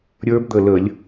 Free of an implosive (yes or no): yes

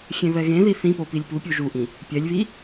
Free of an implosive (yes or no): yes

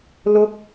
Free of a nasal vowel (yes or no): yes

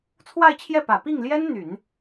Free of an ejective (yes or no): yes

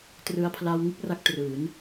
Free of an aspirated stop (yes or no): no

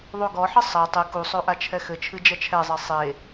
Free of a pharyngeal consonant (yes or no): no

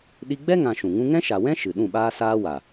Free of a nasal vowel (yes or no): no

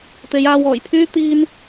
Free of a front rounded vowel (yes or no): no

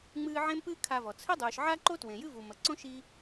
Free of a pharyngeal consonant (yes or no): no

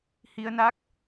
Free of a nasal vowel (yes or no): yes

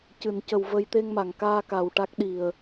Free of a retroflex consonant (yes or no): no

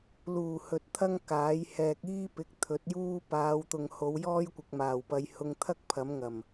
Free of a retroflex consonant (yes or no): yes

